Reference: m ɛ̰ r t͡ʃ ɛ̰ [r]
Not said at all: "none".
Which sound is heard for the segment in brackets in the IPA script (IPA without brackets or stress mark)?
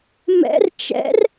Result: r